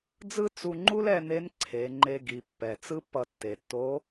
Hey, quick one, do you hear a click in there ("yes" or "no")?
yes